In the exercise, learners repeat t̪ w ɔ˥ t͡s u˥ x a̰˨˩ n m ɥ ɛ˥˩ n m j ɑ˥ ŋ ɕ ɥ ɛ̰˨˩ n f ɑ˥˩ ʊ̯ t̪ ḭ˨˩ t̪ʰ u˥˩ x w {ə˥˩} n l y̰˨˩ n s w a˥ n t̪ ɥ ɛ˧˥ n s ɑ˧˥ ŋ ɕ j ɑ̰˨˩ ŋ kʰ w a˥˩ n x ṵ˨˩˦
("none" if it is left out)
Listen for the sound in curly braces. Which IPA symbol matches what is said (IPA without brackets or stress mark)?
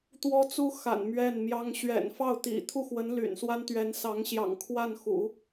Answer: ə˧˥